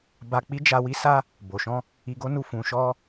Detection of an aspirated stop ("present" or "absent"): absent